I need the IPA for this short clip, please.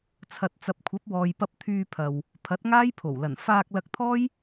t͡sʰ ɐ˨ t̚ t͡s ɐ˨ p̚ kʷʰ ɐ˨˥ p̚ w ɔː˨ j p ɐ˧ p̚ t̪ʰ yː˧ pʰ ɐ˨ w | pʰ ɐ˨˥ t̚ ŋ aː˥ j pʰ o˨˩ w l ɐ˨˩ n f aː˧ k̚ l ɐ˧ k̚ t̪ʰ ɔː˥ j

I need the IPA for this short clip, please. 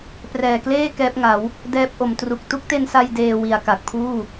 p r ɛː˨˩ k l eː˥˩ k ɛː˦˥ p̚ ŋ a˩˦ w | d ɛː˦˥ p̚ ʔ o˩˦ m t r u˨˩ k̚ t u˦˥ k̚ t e˧ n s a˧ j d eː˧ w i˨˩ a̯ k a˨˩ k̚ pʰ uː˥˩

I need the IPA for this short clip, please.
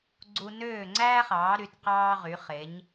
ɡ͡ǀ u˧ n øː˥˩ ŋ͡ǀ æː˥ χ ɑː˩˥ ɾ y˩˥ t q ɑː˥ ʁ y˩˥ χ e˩˥ ɲ

